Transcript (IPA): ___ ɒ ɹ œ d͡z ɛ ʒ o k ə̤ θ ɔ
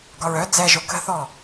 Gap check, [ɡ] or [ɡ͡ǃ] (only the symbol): ɡ